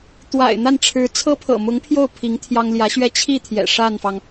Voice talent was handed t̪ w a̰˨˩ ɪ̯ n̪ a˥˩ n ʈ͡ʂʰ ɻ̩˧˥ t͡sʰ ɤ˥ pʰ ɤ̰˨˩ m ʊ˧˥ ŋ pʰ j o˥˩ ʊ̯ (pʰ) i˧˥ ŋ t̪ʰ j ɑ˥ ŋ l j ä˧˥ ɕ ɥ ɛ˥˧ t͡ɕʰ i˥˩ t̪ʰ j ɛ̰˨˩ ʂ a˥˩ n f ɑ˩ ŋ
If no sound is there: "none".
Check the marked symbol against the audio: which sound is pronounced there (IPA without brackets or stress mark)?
pʰ